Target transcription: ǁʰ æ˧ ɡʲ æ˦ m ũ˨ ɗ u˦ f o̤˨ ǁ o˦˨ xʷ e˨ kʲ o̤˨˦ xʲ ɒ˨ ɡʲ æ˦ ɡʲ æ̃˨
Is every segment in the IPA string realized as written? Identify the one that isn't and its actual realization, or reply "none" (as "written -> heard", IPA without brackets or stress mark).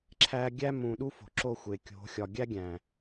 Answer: none